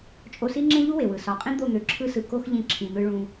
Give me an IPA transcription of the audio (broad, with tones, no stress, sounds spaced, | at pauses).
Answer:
t͡ʃʼ o˧ s i˦ ŋ͡ǁ ẽ˦ ʎ u˦ w e˨ w ɯ˨ s ɒ˨˦ qʼ ĩ˦ d̪ o˦˨ n̪ ø˨ ǁʰ ɯ˦ s ɯ˧ k o˦ x ʎ ĩ˧ ǁʰ ĩ˨ n̪ ɯ˧ ɭ ũ˧